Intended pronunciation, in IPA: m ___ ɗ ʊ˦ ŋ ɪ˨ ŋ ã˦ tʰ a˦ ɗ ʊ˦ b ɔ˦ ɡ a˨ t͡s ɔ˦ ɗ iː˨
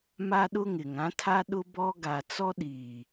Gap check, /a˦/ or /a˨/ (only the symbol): a˦